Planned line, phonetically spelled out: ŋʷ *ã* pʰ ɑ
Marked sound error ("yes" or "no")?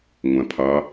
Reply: no